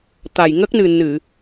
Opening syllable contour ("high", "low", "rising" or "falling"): low